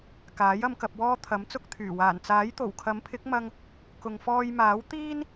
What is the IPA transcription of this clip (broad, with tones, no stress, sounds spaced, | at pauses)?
k aː˨˥ j ɐ˧ m k ɐ˨ p̚ w ɔː˧ t̪ʰ ɐ˨˥ m t͡s ʊ˧ k̚ t̪ʰ yː˨˩ w aː˨˩ n t͡s aː˨˥ j t̪ o˨˩ w kʰ ɐ˨˥ m pʰ ɪ˨˥ k̚ m ɐ˧ ŋ | k ʊ˨ ŋ f ɔː˧ j m aː˨˥ w t̪ iː˥ n